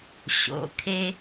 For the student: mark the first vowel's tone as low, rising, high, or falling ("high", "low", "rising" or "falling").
low